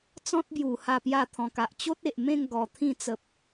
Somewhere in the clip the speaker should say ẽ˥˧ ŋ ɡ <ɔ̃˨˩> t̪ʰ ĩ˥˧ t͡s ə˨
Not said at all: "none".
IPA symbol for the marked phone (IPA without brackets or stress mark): ɔ˨˩